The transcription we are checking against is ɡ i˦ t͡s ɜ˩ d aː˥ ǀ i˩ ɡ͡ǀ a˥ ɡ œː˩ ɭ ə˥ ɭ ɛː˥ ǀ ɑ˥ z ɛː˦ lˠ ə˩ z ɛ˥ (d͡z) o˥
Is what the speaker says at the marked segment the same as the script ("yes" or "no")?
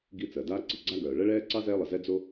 yes